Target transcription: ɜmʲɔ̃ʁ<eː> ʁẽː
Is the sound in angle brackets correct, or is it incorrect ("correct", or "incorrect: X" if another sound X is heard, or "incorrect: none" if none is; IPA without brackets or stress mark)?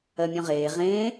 correct